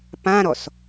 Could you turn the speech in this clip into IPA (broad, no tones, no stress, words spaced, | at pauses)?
pãɾɔs